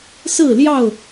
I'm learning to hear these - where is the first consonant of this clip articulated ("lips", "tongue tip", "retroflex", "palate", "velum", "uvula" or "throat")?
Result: tongue tip